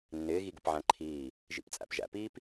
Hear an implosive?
no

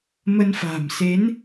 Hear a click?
no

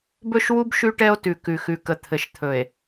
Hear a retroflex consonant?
yes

